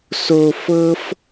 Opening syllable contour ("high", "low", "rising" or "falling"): low